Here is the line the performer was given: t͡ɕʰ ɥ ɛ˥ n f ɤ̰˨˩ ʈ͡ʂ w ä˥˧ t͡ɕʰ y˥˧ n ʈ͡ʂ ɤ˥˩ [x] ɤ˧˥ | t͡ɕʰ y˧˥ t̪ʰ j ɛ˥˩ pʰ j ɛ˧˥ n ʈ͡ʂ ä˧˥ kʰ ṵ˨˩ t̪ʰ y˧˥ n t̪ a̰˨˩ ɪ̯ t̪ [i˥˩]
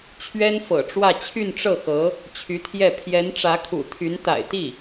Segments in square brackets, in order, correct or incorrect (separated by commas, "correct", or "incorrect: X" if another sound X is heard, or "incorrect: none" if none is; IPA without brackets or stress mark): correct, correct